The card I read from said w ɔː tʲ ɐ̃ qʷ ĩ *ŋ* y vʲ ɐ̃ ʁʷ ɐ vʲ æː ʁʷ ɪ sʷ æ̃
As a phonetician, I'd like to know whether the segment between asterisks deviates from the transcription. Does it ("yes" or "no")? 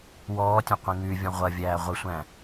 no